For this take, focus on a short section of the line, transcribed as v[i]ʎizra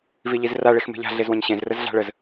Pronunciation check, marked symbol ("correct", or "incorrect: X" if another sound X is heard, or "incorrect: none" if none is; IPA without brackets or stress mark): correct